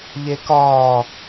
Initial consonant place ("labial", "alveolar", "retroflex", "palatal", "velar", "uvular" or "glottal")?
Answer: palatal